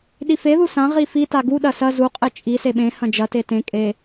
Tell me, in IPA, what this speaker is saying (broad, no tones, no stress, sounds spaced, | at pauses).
ɗ i f e ð u s ã ʁ i f i t a ɡ u ɗ ɐ s ɐ z u qʼ e t͡ʃʼ i s e ɓ ẽ h ɐ̃ d͡ʒ ɐ t e t ẽ kʼ e